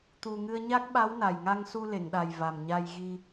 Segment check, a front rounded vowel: absent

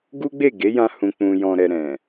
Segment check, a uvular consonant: absent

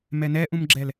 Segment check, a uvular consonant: absent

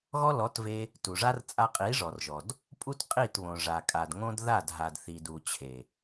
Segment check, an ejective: present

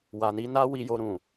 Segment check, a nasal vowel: present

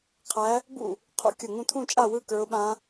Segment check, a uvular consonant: present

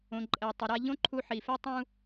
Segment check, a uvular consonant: absent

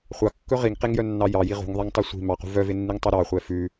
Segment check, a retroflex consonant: absent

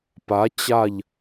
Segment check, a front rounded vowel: absent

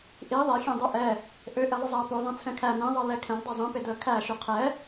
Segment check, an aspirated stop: present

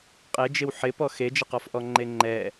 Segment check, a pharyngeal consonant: present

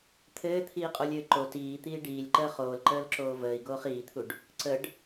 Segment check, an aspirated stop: present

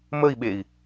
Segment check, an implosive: present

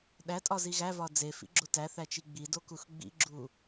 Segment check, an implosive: present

